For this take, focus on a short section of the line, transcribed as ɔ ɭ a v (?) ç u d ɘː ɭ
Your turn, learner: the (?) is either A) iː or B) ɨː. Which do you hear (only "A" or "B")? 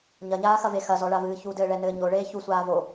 B